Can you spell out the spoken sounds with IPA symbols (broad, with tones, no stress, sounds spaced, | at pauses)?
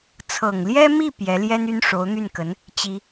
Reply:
t͡sʰ ɤ˨˩ ŋ l j ɛ˥ m i˥˩ p j ɛ˧˥ l j ɛ˥ n y˥ n ʂ o˧˥ ʊ̯ n̪ y˥˩ n k ə˧˥ n | t͡ɕ i˥